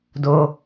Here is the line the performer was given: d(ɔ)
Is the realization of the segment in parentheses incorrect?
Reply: yes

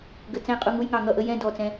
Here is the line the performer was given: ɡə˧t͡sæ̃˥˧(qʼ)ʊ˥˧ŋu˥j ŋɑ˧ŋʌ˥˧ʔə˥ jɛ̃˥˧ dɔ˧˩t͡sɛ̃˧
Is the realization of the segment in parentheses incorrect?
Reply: no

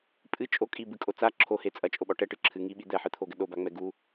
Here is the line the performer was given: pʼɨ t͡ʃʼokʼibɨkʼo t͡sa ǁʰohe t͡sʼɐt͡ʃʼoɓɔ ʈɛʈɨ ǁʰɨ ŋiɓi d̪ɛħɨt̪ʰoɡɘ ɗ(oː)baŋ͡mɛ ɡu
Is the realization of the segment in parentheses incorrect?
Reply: yes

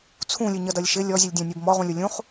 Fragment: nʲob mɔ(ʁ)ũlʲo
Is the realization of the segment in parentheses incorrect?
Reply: no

